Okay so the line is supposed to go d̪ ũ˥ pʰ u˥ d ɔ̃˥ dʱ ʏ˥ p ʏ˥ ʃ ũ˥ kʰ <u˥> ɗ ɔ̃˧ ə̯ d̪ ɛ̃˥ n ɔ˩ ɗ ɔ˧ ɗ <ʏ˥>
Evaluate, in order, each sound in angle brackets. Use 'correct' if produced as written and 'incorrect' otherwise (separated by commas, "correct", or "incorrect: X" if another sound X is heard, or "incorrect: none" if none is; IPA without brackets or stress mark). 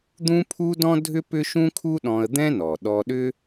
correct, correct